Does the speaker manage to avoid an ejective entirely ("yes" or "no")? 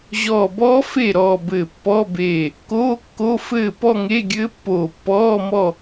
yes